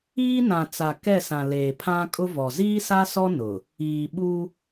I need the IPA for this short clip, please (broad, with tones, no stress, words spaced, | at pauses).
iː˦ nã˨t͡sa˨ kɛ˦˨sã˨ leː˨pʰã˦kʼʊ˦vɔ˨ ziː˦sa˦sɔ˦ nʊ˨ | iː˨ɓu˦